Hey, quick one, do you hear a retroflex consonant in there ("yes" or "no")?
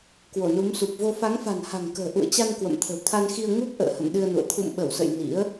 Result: no